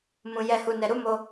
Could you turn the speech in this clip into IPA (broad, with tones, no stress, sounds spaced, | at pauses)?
m ũ˨ j ɛ˨ h u˨ n ɛ˨ ɾ u˨˦ m o˧